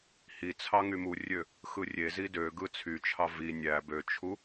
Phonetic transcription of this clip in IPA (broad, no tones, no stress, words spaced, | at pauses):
hi t͡sʰɑŋymurʲø | xɯrʲezi døɡɯ t͡sʰyt͡ʃʰɑ vi nʲæ bøt͡ʃʰu